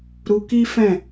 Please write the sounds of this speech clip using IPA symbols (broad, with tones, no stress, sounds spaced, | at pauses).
ɾ u˧ k i˦ f ɛ̃˦˨